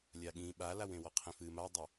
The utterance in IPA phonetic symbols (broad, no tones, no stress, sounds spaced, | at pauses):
lʲ a ɠ ĩ ɓ a l a w ẽ w ɔ qʰ ẽ f ɨ m a dˤ ɐ